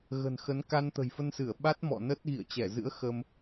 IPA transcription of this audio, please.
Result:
ɣ ə̤˨˩ n x ə˨˦ n k a˧ n t̪ ə̤˨˩ j f ə˧ n s ɨ˧˩ ə̯ ɓ a˦˥ t̚ m ɔ̰˧˨ n ə˦˥ t̚ ɣ ḭ˧˨ ə̯ t͡ɕ ɛ˧˩ z ɨ̰˧˥ ə̯ x ə˧ m

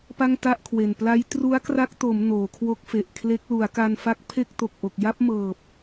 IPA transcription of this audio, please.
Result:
p a˥˩ ŋ t a˥˩ ʔ kʰ w e˨˩ n p l a˦˥ j t r u˦˥ a̯ k r a˦˥ k̚ t o˩˦ m n oː˩˦ kʰ w o˦˥ k̚ f e˨˩ ʔ kʰ l e˦˥ k̚ l u˩˦ a̯ k a˧ n f a˦˥ k̚ pʰ e˥˩ k̚ t o˨˩ k̚ ʔ o˨˩ k̚ j a˥˩ p̚ m ɤː˨˩ p̚

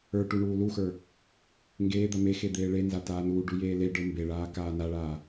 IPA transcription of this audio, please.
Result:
ə˞ ʈ u ɳ uː l u x ə˞ | ŋ ɡ eː d̪ a m e x e d̪ eː ɭ e n z a t aː n uː ɖ u j eː l e ɖ ə˞ m b e ɭ aː k aː n a ɭ aː

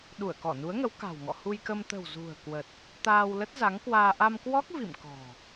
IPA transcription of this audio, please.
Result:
ɗ u˧˩ ə̯ k ɔ˧˩ n u˨˦ ə̯ ŋ ə˨˦ w k a̤˨˩ w ŋ ɔ̰˧˨ h u˧ j k ə˧ m t̪ ə̤˨˩ w z ṳ˨˩ ə̯ k w ə˨˩ t̚ | t̪ aː˧ w l ə˦˥ t̚ z a˨˦ ŋ k w aː˧ ʔ a˧ m k w ɔ˦˥ k̚ v ḭ˧˨ m k ɔ̤˨˩

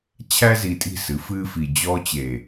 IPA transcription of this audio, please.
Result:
t͡ɕʰ æ˦ z i˨ tʼ i̤˦˨ s ɨ˨˦ f ɨː˦ f i˨ d͡ʑ ɔː˦ t͡ɕ eː˨

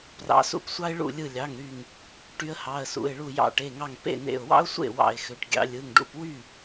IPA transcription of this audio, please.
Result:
p r ɑ̰˩˧ s ṵ˧˩ p sʷ ɑ˧ ɪ̯ ɭ ṵ˧˩ lʲ ɯ˧˩ lʲ ɑ˩˧˩ ŋ ɾ y˧˩ ŋ | ʈ y˧ ə̯ h ɑ˩˧˩ ə̯ s ṵ˩˧˩ ɪ̯ ɭ u˧˩ j ɑ̰˧˩ ʈ e˩˧˩ ŋ ɑ˧˩ ŋ p ḛ˥˩ n ḛ˧˩ ʊ̯ w ɑ̰˥ ʊ̯ sʷ ḛ˥˩ w ɑ̰˧˩ ɪ̯ x ø˩˧ ʈ ɡʲ ɑ̰˩˧ lʲ ɯ˩˧˩ ŋ ɖ ṵ˥˩ p w y˥˩

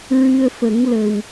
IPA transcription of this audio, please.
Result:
ɹ ɨ˧ ə̯ f ə˨˩˦ ŋ l ə˨˩ w

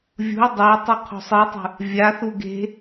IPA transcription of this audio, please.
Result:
vʲ ṳ y̯ dˤ e i̯ tˤ u qʰ o̤ sˤ ɨ i̯ tˤ ṳ | vʲ a θ u ɡ e̤

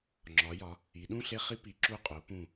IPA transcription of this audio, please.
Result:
ŋ͡ǁ ɒ˩˧ j ɒ˩˧ | i˩˧ ɗ ũ˥˨ ɬ e˦ χ i˦ p i˩˧ ǁ u˧˩ qʼ o˩˧ p ũ˧˩

